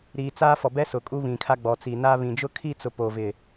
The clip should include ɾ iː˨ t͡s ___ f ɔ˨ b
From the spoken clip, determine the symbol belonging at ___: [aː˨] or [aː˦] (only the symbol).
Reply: aː˦